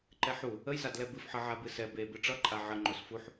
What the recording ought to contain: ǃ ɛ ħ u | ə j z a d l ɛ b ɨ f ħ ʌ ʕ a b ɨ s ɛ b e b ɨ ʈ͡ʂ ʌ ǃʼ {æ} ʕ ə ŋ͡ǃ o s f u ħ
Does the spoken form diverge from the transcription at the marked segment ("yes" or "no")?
yes